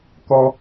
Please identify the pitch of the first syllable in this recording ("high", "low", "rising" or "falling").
high